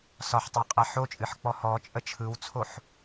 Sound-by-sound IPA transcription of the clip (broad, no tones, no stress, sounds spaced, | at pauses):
s ɒ ħ tˤ ɛ qʼ ɛ ħ o t͡ʃʼ ɨ ħ k͡p ɔ h ɔ t͡ʃʼ ə t͡ʃʰ ɯ w t͡sʰ o ħ